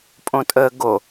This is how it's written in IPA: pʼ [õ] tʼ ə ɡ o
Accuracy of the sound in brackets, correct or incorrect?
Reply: correct